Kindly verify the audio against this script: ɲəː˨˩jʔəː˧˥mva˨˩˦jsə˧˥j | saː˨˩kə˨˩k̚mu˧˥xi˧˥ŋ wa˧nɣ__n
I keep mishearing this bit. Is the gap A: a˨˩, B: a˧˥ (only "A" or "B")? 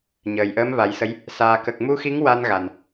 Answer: A